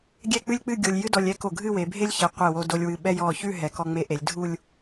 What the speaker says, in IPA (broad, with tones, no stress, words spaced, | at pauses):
ɡʲɛ˥˧k͡pɨ˥lʲk͡pɨ˥˧ ɡʲo˧lʲjɨ˥dɔ˧lʲ ɛ˥ko˧˩ ɡʱɨ˥˧we˩˧bʱe˥lʲçɛ˩˧ qʷe˧˩wo˧do˧lʲ wɨ˧ ɓɛ˥ jɔ˧˩ çʉ˥˧ɦɛ˩˧ kɔ˧ŋ͡me˧ʔe˩˧lʲdʱu˥˧lʲ